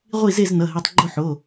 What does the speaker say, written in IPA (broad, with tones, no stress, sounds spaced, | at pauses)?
ʁʷ i˥˨ z e˥˨ z n ʌ˩˧˩ ɦ i˩˧˩ tˤ ɡ͡ǃ o˥˨ ħ o˩˧˩